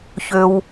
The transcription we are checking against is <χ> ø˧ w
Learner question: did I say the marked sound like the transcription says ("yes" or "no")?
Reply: no